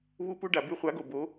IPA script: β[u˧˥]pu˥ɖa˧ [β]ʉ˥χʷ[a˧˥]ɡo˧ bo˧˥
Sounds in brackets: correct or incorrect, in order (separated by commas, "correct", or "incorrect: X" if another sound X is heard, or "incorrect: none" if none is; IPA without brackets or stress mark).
incorrect: u˥, incorrect: b, correct